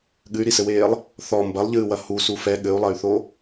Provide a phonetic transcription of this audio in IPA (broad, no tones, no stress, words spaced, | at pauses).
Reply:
ɠɨy̯ɾisɘweːlˠ | θɔ mbɐlˠʎɨːwɐ husu fɛ ɠɘu̯lˠɐy̯θo